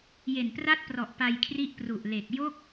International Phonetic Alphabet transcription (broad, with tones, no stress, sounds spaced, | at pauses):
j e˨˩ n p r a˥˩ t̚ p r ɔ˨˩ ʔ p a˧ j kʰ r i˦˥ ʔ p r u˨˩ ʔ l e˨˩ k̚ j o˥˩ k̚